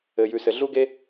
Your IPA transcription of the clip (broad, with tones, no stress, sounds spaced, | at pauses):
ɘ˩ j ʉ˩ s ɘ˩ ɮ u˦ ɡ e˦